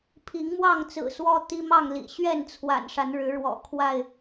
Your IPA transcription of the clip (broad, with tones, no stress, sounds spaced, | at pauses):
pʰ i˨˦ ŋ m w ɑ˥˨ ŋ t͡s ɹ̩˨˩ s w ɔ˦ t̪ i˦ m ɑ˥˨ ŋ l ḭ˨˩ ɕ ɥ ɛ˥˨ n t͡sʰ w a̰˨˩ n ʂ a˨˦ n ɻ ɻ̩˨˦ ɻ w ɔ̰˨˩ kʰ w a˥˨ ɪ̯